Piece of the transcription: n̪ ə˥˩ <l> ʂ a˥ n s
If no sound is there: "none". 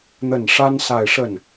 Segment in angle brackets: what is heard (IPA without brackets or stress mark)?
n